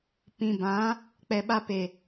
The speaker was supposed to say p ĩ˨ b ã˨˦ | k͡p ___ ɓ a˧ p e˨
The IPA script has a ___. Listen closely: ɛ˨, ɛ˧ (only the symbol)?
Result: ɛ˨